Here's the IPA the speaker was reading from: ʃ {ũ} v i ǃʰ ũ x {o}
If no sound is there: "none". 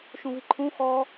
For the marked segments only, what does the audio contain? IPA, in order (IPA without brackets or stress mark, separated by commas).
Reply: ũ, ɔ